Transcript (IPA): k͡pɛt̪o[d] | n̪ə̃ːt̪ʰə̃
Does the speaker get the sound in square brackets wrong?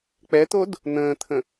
no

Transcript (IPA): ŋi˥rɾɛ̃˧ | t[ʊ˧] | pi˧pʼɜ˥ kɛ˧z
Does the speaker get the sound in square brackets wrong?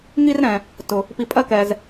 no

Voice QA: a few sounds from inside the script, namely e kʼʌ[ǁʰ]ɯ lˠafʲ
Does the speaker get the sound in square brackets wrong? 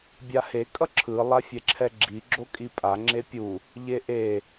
no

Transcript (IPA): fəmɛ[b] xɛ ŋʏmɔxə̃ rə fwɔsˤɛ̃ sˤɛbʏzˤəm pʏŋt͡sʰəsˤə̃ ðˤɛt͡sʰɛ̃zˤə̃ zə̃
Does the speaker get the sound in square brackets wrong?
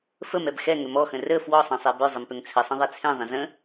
no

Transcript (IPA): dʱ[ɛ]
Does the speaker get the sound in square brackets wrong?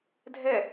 no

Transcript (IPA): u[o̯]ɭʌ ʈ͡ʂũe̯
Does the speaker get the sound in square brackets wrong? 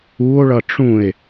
no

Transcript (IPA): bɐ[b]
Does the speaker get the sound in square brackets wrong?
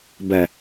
yes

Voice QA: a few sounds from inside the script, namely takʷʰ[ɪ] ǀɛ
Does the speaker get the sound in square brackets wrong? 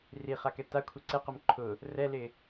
no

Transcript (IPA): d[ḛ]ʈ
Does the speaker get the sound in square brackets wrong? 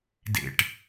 no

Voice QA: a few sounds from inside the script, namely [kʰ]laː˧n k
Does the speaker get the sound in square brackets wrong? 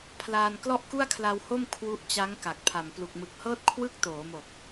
yes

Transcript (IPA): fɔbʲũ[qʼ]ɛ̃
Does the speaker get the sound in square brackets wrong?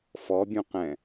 yes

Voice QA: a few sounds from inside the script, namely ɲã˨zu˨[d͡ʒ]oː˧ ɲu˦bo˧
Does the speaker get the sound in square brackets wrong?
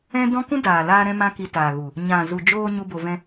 no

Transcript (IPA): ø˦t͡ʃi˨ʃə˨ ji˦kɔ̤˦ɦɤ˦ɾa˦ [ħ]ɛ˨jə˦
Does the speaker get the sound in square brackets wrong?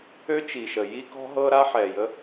no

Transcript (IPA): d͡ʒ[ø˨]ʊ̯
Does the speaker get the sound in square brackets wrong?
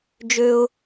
no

